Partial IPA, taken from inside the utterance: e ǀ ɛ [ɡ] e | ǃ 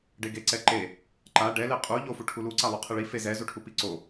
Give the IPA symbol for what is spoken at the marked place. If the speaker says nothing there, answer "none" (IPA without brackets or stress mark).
ǃ